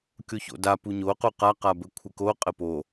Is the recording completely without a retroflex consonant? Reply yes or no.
yes